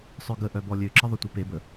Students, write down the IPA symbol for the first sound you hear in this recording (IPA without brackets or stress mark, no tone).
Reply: sˤ